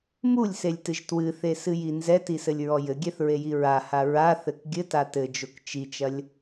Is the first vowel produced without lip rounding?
no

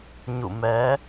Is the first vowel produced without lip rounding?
no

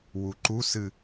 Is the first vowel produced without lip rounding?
no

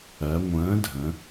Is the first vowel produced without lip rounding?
yes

